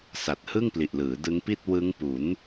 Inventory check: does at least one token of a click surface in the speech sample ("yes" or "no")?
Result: no